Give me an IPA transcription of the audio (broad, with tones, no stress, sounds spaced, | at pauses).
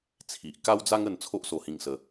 t͡sʰ i˨ ʔ k a˦ w d͡z a˦ ŋ ə˧ n t͡sʰ o˦ ʔ s o˧ h ĩ˧ ŋ s ə˧